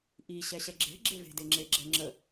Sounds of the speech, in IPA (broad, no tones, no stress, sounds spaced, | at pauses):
ʔ i ɕ ɛ ɕ ɛ ɡ͡ǁ e̤ ɡ͡ǁ e v e̤ d e ŋ͡ǁ e ɡ͡ǁ ɛ ŋ͡ǁ ə